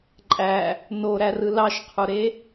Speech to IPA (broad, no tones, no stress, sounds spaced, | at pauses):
ǃʼ æ | n o ɾ æ r ɯ l ɑ ʃ qʰ u ɾ e